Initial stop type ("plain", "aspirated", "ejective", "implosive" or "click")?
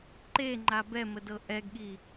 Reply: click